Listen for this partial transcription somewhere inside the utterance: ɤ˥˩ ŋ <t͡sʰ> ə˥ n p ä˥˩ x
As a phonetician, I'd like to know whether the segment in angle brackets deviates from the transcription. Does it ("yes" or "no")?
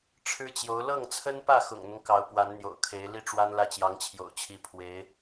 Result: no